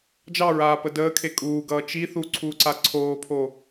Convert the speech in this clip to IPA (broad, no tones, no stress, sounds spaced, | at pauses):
d͡ʒ ɑ ɹ aː p ə d əː kʰ e kʼ uː ɡ ʌː t͡ʃ i θ u ǀʰ uː ǀ a ǀʰ oː pʰ o